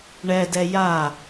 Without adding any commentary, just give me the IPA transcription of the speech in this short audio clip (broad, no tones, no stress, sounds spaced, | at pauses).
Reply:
ɳ ɛ d ɛ j a